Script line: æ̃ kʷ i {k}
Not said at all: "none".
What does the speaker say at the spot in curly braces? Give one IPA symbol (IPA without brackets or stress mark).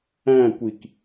k